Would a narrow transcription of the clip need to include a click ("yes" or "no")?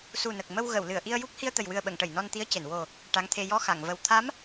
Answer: no